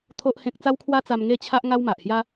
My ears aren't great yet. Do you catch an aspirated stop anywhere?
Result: yes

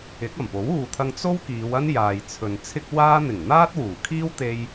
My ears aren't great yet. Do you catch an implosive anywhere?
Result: no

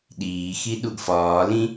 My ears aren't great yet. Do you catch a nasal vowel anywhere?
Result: yes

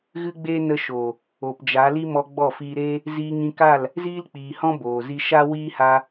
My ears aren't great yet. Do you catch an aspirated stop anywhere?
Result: no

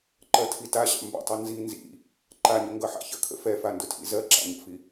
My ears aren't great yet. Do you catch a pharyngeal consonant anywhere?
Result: yes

